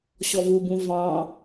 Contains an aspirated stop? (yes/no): no